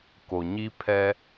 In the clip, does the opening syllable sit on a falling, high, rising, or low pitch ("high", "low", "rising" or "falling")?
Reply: low